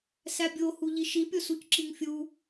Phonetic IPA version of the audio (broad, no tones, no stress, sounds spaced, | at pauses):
s æ bʲ o h u ʎ i ʃ i pʲ o s u c ǁ i ŋ fʲ u